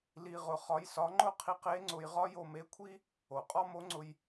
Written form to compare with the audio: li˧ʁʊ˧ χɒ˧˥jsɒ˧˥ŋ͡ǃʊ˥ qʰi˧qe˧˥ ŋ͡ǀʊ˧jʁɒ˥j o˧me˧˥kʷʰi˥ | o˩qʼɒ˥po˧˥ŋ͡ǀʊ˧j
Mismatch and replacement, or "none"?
p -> m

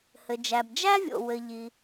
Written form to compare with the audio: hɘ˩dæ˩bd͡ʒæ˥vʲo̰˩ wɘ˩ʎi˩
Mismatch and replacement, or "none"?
d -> d͡ʒ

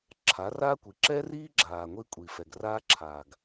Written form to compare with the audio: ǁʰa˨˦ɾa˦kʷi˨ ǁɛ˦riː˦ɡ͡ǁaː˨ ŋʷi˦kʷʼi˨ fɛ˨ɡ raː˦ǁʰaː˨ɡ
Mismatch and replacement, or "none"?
ɾ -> r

